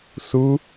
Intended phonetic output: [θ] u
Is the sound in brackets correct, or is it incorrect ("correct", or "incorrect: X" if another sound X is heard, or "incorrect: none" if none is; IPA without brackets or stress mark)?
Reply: correct